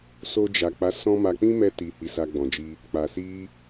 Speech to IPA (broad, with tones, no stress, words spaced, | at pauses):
so˧d͡ʒa˨k͡pa˨˦ sɔ̃˦ma˧ k͡pĩ˦mɛ˧ ti˨hi˨ sa˧ɡ͡bɔ̃˨d͡ʒi˧ | k͡pa˨si˧